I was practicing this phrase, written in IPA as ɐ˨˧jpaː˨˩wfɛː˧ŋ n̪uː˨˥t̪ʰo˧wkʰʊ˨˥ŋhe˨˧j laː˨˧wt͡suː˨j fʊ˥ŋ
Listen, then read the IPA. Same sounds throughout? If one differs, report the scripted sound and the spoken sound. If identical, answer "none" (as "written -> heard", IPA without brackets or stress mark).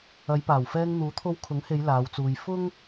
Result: none